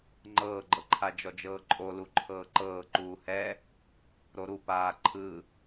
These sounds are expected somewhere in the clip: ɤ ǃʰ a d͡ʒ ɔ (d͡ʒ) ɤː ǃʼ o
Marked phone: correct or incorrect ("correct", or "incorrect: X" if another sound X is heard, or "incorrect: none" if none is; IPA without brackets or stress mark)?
correct